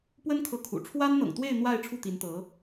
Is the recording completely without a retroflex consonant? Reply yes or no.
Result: no